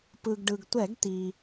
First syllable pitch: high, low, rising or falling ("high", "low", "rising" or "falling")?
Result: low